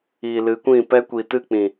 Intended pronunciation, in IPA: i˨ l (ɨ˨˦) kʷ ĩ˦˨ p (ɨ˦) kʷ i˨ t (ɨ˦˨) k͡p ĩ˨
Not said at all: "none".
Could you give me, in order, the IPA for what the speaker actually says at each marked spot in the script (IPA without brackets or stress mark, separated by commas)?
ɨ˨˦, ɛ˦, ɨ˦˨